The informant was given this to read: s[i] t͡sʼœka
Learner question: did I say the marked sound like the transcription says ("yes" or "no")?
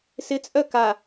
no